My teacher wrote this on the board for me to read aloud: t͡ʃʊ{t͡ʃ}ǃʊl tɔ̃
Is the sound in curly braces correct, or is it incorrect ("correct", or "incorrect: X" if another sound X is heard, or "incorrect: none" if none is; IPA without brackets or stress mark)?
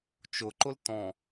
incorrect: none